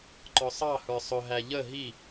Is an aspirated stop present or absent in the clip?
absent